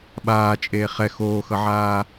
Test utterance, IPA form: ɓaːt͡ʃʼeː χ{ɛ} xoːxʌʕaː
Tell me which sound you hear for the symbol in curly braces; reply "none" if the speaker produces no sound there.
ɛ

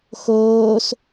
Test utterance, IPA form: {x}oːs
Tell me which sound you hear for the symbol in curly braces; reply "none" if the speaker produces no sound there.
x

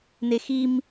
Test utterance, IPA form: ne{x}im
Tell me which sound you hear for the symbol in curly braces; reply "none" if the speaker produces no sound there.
x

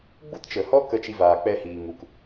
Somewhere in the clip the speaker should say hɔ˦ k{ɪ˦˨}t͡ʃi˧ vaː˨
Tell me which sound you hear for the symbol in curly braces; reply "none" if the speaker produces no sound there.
ə˦˨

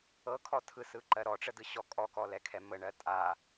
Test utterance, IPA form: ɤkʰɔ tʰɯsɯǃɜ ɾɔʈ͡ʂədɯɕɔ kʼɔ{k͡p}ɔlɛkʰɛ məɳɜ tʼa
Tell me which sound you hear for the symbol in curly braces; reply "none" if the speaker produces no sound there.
k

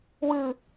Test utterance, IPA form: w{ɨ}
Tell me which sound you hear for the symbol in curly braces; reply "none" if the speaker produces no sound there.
ɨ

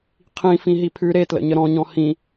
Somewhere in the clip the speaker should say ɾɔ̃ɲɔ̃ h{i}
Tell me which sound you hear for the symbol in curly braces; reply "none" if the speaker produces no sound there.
ĩ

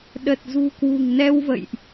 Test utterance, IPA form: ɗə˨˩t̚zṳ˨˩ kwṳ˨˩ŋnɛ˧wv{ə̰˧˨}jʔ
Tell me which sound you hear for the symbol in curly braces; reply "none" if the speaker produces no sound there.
ə̰˧˨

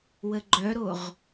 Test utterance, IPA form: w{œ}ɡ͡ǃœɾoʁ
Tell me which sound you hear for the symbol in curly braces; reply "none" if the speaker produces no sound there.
ə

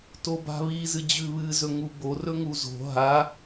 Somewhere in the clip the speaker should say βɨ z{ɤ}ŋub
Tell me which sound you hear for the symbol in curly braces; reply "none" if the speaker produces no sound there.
ɵ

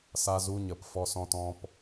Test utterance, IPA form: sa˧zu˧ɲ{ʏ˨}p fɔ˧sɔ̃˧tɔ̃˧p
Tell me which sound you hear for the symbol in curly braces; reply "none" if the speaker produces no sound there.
ə˨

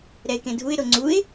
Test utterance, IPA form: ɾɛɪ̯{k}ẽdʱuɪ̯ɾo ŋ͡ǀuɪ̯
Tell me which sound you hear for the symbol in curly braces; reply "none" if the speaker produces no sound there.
k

